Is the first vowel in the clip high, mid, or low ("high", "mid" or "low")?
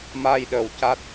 low